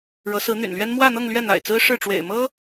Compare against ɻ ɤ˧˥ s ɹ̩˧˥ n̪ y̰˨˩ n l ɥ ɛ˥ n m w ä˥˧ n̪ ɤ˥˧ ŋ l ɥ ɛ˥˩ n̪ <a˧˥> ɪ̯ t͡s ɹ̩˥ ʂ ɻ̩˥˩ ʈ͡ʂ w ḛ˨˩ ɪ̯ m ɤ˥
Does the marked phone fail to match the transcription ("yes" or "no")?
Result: yes